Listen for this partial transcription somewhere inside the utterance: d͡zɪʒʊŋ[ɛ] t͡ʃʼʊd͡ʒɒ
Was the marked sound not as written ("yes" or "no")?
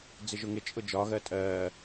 yes